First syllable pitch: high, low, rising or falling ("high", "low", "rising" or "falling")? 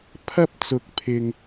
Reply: high